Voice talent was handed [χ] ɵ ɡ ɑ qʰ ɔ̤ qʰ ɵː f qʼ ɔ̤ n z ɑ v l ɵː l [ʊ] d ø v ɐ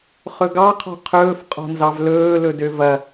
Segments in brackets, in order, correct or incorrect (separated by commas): correct, incorrect